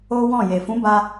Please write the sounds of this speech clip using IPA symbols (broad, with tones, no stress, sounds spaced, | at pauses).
o˦ w ɔ̃˦˨ j e˨ f ũ˨˦ b a˧